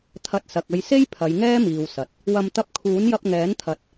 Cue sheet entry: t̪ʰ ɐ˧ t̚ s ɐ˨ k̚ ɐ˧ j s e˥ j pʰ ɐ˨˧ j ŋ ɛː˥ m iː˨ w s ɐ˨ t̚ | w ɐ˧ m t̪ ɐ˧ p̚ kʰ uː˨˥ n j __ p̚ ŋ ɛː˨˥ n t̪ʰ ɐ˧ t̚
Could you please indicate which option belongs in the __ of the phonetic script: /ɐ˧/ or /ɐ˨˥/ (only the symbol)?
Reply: ɐ˧